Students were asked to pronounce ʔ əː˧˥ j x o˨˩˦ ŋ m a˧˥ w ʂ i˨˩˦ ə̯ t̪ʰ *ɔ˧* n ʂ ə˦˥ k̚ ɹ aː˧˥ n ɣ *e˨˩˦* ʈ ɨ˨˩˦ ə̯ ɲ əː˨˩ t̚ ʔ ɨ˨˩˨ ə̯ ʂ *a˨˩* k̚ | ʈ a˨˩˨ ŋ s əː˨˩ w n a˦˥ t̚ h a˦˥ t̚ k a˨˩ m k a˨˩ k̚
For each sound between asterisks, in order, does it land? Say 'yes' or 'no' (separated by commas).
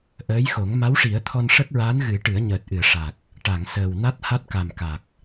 yes, no, yes